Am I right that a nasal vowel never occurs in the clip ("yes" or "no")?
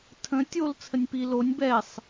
no